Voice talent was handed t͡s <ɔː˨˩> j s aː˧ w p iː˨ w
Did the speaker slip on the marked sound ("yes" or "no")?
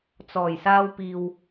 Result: no